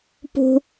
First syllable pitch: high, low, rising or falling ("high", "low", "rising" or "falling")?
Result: low